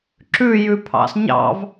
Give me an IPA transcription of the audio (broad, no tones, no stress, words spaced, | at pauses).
ǁʉjʉpʰɑ̰s ɲɑ̰v